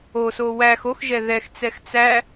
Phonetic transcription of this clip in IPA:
o s o w æ x o x ʒ ɛ ð ɛ x t͡s ɛ x t͡s æ

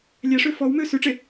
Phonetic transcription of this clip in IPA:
lʲ æ ʂ ø f ɔ w m ø s ʉ ʈ͡ʂ e

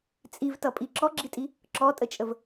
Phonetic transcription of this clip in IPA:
t͡sʼ i v t ʌ pʼ i ǁ ɔ ɡ͡ǁ i tʼ i | ǁ ɔ tʼ ə t͡ʃʼ ə v

